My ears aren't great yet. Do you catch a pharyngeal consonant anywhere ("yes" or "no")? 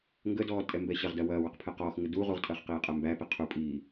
no